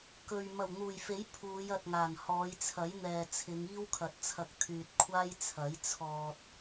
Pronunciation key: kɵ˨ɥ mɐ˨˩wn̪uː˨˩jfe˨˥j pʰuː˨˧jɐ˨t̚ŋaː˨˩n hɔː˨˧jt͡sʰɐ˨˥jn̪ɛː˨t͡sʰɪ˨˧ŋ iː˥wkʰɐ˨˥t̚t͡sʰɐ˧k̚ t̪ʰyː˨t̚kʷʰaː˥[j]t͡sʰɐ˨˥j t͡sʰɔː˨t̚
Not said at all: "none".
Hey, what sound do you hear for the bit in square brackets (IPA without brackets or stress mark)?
j